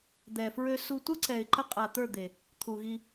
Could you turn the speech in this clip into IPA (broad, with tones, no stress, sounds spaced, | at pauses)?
d̪ ɛ˨ f ɹ ø˧ s u˧ tʷ ə˦ ǀ ɛ˨ ɪ̯ ǃ ə˧ qʼ a˨ t̪ ə˞˦˨ d̪ e˨ | t̪ʰ u˨ ɣ i˧